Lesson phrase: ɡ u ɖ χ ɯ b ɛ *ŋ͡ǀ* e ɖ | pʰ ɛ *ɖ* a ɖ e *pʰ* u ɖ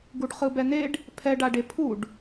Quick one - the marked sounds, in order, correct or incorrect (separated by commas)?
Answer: incorrect, correct, correct